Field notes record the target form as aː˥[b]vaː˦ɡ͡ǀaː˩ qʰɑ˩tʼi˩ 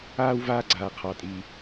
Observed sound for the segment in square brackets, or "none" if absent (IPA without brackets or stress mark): w